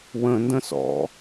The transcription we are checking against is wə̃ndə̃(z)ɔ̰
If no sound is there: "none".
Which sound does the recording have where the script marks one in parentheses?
s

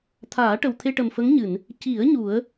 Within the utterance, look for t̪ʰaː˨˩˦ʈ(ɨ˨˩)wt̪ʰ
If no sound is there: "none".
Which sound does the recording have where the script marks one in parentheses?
ə˨˩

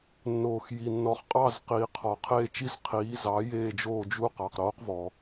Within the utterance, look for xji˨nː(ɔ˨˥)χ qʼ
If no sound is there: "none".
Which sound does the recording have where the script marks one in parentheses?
ɔ˨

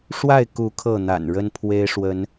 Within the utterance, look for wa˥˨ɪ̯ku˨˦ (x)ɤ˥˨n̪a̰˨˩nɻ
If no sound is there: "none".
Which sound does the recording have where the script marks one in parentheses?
kʰ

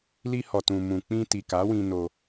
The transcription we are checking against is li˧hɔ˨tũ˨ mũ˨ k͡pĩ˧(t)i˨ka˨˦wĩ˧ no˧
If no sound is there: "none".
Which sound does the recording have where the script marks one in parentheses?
t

